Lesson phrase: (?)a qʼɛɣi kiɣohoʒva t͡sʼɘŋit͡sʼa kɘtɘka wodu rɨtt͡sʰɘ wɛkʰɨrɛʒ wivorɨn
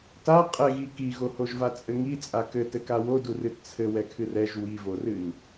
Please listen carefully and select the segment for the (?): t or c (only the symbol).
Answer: t